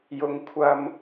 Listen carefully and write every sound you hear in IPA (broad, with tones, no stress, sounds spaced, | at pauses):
j ʊ˧ ŋ kʷʰ ɐ˧ m